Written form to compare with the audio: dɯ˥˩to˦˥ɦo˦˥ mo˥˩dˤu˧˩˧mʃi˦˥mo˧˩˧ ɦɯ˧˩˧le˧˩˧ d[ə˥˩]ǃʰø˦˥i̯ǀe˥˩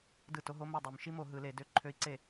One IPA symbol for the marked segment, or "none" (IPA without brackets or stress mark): ø˥˩